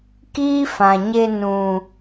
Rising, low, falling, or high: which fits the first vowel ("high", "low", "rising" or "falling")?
high